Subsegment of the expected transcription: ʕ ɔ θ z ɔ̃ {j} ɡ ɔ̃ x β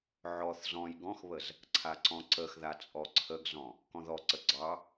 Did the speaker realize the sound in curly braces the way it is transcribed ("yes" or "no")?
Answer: yes